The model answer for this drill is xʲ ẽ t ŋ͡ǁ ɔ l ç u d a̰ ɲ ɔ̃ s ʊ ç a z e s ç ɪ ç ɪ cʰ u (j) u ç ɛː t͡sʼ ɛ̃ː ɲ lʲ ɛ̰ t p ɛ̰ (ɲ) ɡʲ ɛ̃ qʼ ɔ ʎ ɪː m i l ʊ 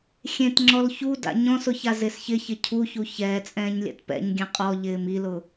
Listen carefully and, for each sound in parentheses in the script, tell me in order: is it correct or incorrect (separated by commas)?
incorrect, correct